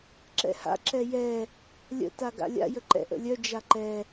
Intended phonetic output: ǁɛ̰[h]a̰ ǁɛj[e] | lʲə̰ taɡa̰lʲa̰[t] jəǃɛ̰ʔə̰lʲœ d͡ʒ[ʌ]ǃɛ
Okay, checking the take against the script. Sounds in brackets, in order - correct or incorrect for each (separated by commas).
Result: correct, incorrect, incorrect, incorrect